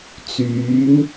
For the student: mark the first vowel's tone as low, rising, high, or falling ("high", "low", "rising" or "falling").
rising